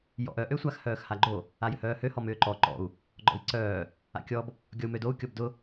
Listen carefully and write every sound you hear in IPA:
j ɔ̰ ʔ œ ʔ ø sʷ a x h œː x h a ɡ͡ǃ o | a j ʏ h œː h ø h ɔ m ʏː ǃ ɔ ǃ ɔ̰ u̯ | ɡ͡ǃ ɔ̰ i̯ ǀ œː | a̰ kʲ ɔ b | ɡʲ ɔ u̯ m ø d o u̯ kʲ ɔ b d ʊ

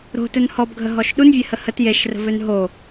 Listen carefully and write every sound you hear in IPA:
ɾ o̤ t ɵ n h ɔ b ɡʱ ə ɦ ɔ ʃ ɗ u n vʲ e h ə h ə t j e ʃ r ə̤ v ø n ɦ o

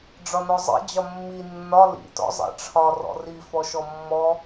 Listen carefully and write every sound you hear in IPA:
ɖ͡ʐ ɒ n ɔ zˤ ḭ d͡ʑ ɒ mː i nː ɒ l ḭ t ɔ̰ zˤ ɛ̰ ʈ͡ʂʰ ɒ r ɔ̰ r i f ɔ ʃ ɔ mː ɔ

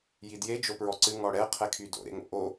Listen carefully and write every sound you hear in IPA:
j i d j e d͡ʒ o p ɹ ɔ ǀ ɨ ŋ ɔ ɽ ɛ qʰ ɛ kʰ y d o̰ ɾ ḛ ŋ o̰ ʔ o

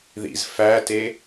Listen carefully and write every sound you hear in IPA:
ð ḭ z f æ t e

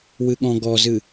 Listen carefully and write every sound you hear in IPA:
w ɨ ɠ ɔ̃ ɡ ɔ z ɨ

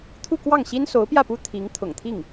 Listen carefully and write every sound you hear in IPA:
t̪ʰ u˥˧ k w ɑ˥˩ ŋ ɕ i˥ n s o˧˥ ʊ̯ p j ä˥˩ p u˥ t̪ʰ i˧˥ ŋ t̪ʰ ʊ̰˨˩ ŋ t̪ʰ i˥˩ ŋ

